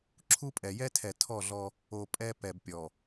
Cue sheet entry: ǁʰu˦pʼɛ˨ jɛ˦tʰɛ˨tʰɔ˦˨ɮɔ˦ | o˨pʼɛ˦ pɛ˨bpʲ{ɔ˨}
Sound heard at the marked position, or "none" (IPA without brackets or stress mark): ɔ˨